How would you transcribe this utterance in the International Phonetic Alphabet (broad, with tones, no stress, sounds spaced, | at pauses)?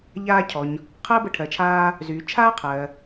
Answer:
ʎ aː˧ cʰ ɔ˩ ɲ | qʰ ɜ˥ b ə˧ ʈʰ ɜ˩ t͡ʃʰ aː˧ | z yː˩ t͡ʃʰ aː˥ qʰ ɜ˩